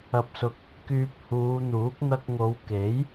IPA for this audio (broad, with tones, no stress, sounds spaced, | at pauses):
ɐ˨ p̚ s ʊ˨ k̚ | k yː˨ p̚ h uː˨˧ n̪ uː˨˥ k̚ n̪ ɐ˧ k̚ ŋ o˨˧ w k e˨˥ j